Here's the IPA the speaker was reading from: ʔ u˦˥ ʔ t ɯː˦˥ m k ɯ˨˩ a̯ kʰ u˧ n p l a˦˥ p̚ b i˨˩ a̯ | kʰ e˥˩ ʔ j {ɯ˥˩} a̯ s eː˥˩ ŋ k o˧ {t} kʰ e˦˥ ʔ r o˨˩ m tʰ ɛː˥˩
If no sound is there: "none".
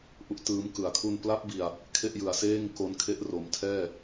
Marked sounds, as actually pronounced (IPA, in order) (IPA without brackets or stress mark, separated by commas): ɯ˨˩, n